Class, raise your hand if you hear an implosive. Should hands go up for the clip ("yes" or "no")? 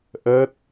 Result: no